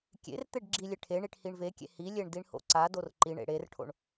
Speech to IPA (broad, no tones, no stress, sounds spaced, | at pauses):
kʲ ḛ r t̪ e ɖ ɡ͡ǁ i lʲ e ʈʰ e ɳ i ʈ h i ɳ v e kʲ ḛ h i lʲ e ɳ d i ɳ h o̰ ǀ a d o r ǃ i ɳ ḛ ɽ e r ʈʰ o̰ ɳ